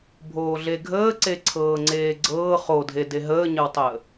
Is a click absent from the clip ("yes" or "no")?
no